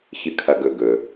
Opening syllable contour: low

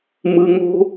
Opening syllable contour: low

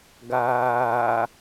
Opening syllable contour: low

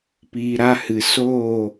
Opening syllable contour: low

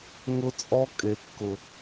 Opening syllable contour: high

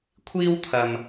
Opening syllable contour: high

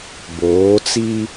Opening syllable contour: rising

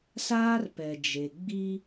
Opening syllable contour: high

